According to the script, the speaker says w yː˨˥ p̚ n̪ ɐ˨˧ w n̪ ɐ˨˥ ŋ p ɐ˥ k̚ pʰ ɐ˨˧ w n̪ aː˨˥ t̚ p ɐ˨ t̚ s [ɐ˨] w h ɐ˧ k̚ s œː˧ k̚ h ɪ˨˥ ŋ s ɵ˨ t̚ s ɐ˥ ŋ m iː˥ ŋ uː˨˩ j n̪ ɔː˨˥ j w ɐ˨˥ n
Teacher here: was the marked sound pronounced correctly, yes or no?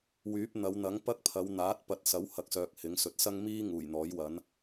no